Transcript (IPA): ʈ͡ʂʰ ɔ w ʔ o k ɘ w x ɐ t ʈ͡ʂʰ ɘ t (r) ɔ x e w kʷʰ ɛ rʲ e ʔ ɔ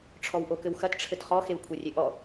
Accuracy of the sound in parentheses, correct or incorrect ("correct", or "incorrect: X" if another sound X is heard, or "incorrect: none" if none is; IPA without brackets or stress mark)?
incorrect: χ